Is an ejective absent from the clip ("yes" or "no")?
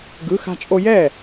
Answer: no